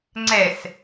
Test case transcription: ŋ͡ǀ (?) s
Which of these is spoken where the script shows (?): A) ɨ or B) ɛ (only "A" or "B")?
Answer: B